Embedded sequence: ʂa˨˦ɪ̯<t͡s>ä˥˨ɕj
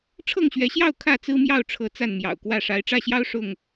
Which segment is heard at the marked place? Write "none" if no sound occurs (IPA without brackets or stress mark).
ʈ͡ʂ